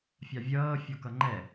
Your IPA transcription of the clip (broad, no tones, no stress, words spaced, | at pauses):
fʲɑvʲʌː fʲɔkʌŋ͡ǃɛ